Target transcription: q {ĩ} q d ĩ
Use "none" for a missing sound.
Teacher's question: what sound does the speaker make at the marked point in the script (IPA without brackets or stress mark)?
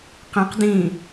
ĩ